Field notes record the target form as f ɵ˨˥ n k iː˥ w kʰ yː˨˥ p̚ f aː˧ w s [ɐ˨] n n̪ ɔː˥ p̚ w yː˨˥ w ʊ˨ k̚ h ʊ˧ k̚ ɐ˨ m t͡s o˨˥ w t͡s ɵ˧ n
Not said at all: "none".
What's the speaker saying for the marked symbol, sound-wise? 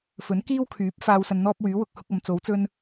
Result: ɐ˧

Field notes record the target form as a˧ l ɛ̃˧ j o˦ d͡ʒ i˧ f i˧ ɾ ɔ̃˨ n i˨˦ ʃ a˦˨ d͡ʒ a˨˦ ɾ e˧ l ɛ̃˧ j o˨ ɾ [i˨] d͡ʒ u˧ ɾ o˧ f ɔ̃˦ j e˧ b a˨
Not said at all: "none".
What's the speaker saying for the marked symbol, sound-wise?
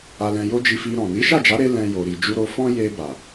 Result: i˨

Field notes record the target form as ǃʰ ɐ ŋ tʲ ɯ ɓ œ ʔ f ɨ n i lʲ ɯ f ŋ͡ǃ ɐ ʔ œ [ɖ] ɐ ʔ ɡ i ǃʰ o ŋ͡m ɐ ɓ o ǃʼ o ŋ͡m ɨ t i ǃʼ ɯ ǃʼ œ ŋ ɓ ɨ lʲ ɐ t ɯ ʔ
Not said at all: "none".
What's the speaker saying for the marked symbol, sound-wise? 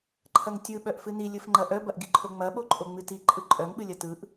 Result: b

